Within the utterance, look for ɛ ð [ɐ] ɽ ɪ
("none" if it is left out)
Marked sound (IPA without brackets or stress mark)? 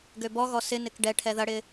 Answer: ɐ